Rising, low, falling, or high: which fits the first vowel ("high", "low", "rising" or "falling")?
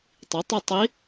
rising